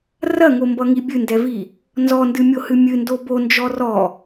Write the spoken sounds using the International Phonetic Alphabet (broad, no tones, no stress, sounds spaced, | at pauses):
r ɐ ŋ o m b ʌ ŋ i bʲ ɨ n d ɛ v i | n z ɔ n d ɨ mʲ o h ɨ mʲ ɨ n d o b o n d͡ʒ ɔ r ɔ